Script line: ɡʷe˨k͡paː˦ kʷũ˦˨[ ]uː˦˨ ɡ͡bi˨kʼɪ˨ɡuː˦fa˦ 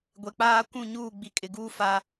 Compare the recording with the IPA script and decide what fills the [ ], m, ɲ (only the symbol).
ɲ